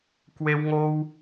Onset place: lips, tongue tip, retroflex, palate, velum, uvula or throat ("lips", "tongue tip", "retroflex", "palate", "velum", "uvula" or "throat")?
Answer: velum